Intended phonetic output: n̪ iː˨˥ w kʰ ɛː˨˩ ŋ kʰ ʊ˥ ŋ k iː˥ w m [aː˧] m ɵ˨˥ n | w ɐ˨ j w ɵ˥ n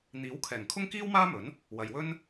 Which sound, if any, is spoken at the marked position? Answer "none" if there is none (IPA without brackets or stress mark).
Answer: aː˥